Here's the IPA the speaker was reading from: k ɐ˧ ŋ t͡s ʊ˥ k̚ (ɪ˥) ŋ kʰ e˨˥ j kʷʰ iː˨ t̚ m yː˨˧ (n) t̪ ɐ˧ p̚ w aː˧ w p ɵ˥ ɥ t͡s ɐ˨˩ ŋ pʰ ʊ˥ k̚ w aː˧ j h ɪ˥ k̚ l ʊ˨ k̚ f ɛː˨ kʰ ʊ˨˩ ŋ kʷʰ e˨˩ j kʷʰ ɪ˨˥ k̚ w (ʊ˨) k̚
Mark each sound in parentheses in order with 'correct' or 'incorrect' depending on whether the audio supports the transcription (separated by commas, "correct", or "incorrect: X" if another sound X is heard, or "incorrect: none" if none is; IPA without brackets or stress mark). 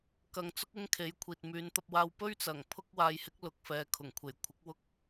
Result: correct, correct, incorrect: ʊ˥